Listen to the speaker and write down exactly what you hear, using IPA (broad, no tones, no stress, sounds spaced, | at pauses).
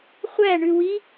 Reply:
χʷ æ ɳ ʉ w i